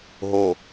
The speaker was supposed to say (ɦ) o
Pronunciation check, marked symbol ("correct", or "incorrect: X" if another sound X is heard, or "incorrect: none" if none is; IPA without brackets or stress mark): correct